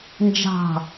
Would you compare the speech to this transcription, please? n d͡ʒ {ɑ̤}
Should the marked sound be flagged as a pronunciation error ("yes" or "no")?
no